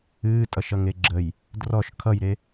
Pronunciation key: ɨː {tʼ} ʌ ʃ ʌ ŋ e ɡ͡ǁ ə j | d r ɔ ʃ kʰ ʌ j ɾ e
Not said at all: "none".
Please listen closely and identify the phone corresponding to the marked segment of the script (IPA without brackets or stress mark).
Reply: tʼ